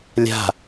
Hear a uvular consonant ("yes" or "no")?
no